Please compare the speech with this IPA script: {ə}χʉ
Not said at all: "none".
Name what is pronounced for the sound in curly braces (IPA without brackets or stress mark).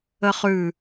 ə